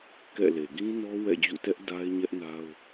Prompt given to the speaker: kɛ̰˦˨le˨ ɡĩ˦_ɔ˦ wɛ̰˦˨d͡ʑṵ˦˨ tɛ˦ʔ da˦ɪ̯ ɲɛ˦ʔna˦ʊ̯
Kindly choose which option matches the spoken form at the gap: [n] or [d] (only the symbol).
n